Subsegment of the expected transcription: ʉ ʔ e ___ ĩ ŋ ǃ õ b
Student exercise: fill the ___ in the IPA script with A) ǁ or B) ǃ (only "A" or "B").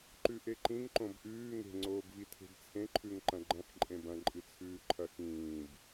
B